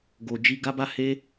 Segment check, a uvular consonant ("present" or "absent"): absent